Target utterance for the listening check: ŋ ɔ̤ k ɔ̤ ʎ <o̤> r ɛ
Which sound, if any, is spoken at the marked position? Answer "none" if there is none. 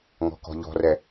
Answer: ɔ̤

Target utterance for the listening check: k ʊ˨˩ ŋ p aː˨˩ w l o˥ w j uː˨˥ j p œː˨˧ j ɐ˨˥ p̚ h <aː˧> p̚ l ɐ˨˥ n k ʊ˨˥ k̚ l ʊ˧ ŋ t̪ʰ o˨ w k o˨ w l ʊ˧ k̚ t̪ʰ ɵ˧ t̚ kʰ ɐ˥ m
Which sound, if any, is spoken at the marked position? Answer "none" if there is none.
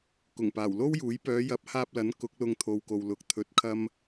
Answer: aː˧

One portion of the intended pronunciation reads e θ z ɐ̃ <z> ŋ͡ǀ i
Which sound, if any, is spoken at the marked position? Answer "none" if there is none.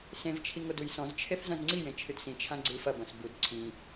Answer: z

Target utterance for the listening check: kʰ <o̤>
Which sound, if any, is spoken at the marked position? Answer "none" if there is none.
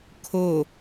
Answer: o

